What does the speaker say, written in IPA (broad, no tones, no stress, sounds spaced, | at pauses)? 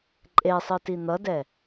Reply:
ǃʼ e sˤ ɯ t i n̪ ʌ d ɛ